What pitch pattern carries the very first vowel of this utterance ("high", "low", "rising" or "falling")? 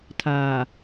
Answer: low